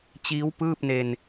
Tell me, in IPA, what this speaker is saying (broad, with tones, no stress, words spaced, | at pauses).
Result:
t͡ɕiː˦˥wpɯː˥˩p̚ne˧n